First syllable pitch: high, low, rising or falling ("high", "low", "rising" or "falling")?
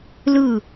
falling